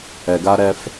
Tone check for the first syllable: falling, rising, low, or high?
low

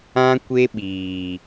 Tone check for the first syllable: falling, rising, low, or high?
high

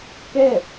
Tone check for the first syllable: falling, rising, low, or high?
falling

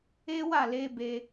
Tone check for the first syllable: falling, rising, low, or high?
high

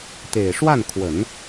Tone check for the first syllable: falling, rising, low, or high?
low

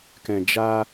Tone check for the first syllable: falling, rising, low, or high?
low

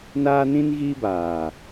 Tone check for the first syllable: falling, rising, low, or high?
high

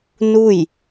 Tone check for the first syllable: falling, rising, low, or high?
falling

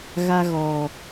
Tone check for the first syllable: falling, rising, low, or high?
high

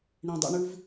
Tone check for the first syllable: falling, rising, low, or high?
low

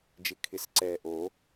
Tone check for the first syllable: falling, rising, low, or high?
low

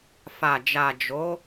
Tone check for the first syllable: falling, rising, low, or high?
low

